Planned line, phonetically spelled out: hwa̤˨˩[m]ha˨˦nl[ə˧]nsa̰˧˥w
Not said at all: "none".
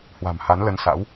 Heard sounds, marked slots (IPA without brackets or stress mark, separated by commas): m, ə˧